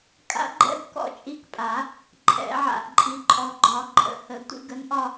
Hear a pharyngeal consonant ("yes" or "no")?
yes